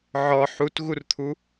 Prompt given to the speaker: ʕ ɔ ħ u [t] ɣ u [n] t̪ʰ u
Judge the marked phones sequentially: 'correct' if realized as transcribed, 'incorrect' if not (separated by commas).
correct, incorrect